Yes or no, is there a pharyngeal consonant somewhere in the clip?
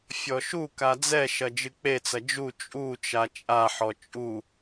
yes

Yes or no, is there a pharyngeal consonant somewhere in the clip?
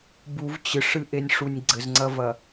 no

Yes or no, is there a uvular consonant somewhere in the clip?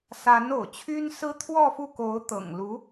no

